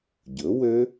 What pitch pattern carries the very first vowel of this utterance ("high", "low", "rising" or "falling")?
rising